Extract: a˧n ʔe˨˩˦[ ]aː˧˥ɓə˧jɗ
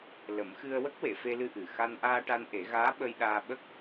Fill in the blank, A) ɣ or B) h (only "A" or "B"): A